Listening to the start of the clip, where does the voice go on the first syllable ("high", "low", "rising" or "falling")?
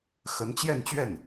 rising